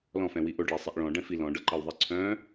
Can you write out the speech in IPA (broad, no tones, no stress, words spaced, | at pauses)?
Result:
lɔ̃fɛ̃wi ʔoɖɭesˤiʔ ɭɔ̃ɖɛ̃fi lɔ̃ɖɤǃɤwðˤi ǀʰœ̃